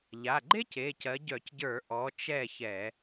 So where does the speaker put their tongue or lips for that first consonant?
palate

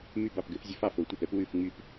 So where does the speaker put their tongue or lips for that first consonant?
lips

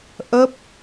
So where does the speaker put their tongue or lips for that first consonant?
throat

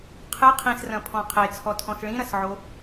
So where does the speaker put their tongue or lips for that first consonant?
uvula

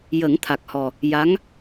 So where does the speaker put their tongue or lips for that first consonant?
palate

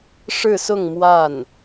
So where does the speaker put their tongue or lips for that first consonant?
retroflex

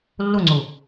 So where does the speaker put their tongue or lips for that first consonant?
tongue tip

